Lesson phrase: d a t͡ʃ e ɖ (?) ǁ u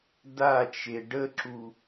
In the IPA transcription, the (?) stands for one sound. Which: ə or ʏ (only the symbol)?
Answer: ə